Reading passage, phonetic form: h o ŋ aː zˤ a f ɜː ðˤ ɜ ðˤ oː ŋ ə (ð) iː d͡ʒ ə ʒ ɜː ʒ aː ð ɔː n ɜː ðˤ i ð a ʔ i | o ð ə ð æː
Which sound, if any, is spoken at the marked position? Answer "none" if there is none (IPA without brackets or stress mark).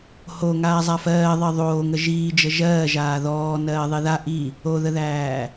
ʒ